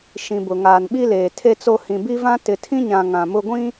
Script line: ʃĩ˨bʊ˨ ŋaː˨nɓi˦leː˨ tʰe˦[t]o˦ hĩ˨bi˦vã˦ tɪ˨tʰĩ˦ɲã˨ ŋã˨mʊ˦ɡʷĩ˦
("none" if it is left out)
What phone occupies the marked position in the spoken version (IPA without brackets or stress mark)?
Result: t͡s